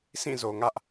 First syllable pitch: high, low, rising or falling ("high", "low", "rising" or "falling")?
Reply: falling